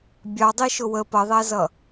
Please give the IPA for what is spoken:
bʲɑdˤiʃʊ wə pʌðˤæzʌ

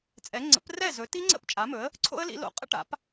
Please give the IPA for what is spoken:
t͡sʼɛ˩˥ ŋ͡ǀə̰˩˥prɛ˥˩zɵ˩˥ ti˦˥ŋ͡ǀə̰˥˩p t͡ʃʼa˩˥mɵ˩˥ə̯ | ǀʰo̰˦˥ə̯lḭ˩˥lo̰˩˥ qʼə̰˦˥ʈa̰˩˥p

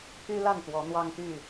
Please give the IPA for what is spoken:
pʰy˦la˥˨nt̪wɔ˨˦ n̪wɑ˦ŋt̪y˥˨

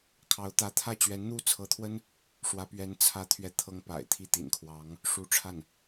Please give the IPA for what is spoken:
kʰɑ˧˥ʊ̯t̪ä˧˥ t̪ʰä˥˩ t͡ɕɥɛ˧˥nn̪u˥˩t͡sʰɤ˧˥t̪ʰwə˥n | ʂwä˥pɥɛ˥n t͡sʰä˥ t̪ʰɥɛ˥˩t̪ʰɤ˥ŋpa̰˨˩ɪ̯ t̪ʰi˥˩t̪ḭ˨˩n kʰwɑ˧˥ŋ | ʂu˧˥ʈ͡ʂʰa˥˩n

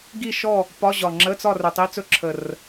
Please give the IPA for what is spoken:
ɡi˥˨ʃɔ˥˨ | pɒ˧˥˧ʑɒ˨˩ŋ͡ǁə˧˥˧t͡sɒ˥˨r ɵ˨˩tˤi˧˥˧t͡sɵ˥ ǁʰə˨˩r

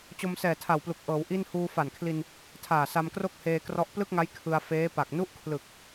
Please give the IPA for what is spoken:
t͡ɕo˧msɛː˨˩tʰa˨˩wplu˨˩k̚ ʔɤː˩˦w ʔi˥˩n huː˧fa˨˩nkʰli˧n | tʰaː˨˩sa˧mkro˥˩k̚heː˧ krɔ˦˥ʔ plɯ˥˩k̚ŋa˦˥j kʰɯ˧a̯ feː˦˥pa˨˩k̚ nu˥˩ʔkʰlɯ˨˩k̚

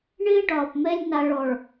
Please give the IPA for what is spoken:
ɳɪː˦ɖɒː˨pmɛ˦lʲ na˨ɭɔ˨ɭ

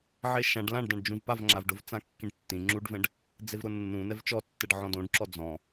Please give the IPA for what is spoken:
ʕeʃãɖ lãɖdãɖd͡ʒũv pavŋ͡ǁavɖʊv t͡sãkːĩɖtːĩ ŋ͡ǁuɖvɛ̃ɖ | d͡zevɾʊnːũ nɛvt͡ʃɔtːɛɖ ʕɔ̃dõɖǁɔ d͡zɔ̃

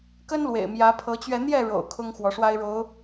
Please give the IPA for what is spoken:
kə˦nlwḛ˨˩ɪ̯ mjä˨˦pʰɤ˨˦t͡ɕɥɛ˧ n̪jɛ˥˨ɻo̰˨˩ʊ̯ kʰʊ˦ŋxwɔ˨˦ʂwa˦ɪ̯ɻo˨˦ʊ̯

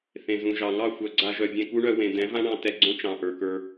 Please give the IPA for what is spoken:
θẽ˨zũ˨ʒɑ˨ ŋɑ˦˨xʷœ˨ɡ͡ǀa˧ ʒœ˨bʲẽ˧ku˦ɳœ˧ wẽ˨d̪ɛ̃˨˦vã˦ɳɑ̃˧ tɛ˧ɡ͡ǀõ˦ t͡ʃɑ̃˨ʔə˞˨kə˞˧

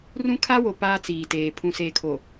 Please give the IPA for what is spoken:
rũ˦kʰa˦wo˨ paː˦t͡siː˨teː˨ pʰũ˨seː˨kʰo˨

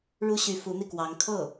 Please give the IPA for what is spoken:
ɻu˥ɕy˧˥ fu˧˥n̪i˧kwɑ˧˥ŋ kʰɤ˥˩

